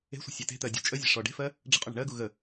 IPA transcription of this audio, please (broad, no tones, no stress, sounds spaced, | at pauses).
e̤ sʷ ə̤ sʲ e t e̤ t̪ ɜ dʲ ṳ t͡ʃʼ ə zʲ e̤ ʂ ɔ ɖ e̤ f ɜ | ɖ͡ʐ ə̤ qʼ u ɳ ə̤ ɳ ɜ ɡ u ɣ ə